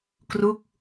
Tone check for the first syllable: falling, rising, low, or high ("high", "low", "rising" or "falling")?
falling